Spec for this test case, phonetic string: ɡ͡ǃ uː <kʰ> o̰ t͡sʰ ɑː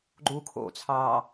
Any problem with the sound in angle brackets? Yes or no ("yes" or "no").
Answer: no